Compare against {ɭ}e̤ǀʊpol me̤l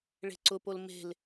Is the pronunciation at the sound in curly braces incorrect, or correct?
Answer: correct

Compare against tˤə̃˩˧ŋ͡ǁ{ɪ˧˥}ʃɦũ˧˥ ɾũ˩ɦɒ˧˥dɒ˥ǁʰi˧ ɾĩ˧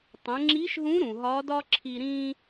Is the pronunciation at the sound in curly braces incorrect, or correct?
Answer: incorrect: i˧˥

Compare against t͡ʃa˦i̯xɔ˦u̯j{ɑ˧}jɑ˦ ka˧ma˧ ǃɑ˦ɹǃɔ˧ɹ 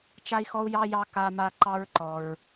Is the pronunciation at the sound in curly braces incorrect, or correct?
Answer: incorrect: ɑ˦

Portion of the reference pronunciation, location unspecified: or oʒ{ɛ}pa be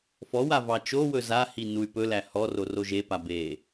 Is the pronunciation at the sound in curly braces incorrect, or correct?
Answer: incorrect: e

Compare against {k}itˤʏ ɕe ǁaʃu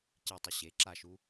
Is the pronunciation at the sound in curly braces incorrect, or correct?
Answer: incorrect: c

